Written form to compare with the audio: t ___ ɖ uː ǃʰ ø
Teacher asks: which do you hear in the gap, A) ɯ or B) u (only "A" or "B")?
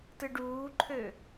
A